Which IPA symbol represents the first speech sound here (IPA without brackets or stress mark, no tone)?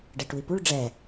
ɖ